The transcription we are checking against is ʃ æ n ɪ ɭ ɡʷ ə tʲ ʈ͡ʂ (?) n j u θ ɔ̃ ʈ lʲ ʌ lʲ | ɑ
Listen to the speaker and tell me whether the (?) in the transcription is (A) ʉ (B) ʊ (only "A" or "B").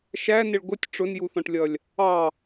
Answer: B